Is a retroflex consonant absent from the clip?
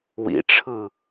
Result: no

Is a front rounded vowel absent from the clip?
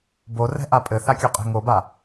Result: yes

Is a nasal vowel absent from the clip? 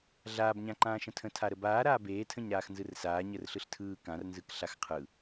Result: no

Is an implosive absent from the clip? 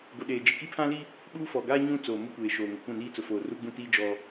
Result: no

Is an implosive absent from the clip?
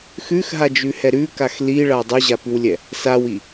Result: yes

